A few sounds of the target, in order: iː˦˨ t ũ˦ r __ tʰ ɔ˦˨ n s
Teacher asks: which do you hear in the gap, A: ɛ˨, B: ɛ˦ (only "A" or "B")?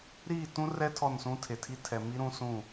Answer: B